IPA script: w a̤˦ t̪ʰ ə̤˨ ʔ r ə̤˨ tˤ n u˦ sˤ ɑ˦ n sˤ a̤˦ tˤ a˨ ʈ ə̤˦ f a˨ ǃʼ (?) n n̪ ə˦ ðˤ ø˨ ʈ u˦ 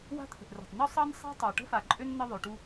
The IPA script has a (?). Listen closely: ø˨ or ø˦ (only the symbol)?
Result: ø˦